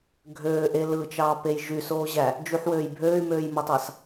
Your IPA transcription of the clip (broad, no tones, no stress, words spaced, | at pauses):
ɡʱøːʔe lɯt͡ʃɑːpej ʒysoːʑæ | d͡ʒyħwøːj bʱøːy̯møːjmotˤɑs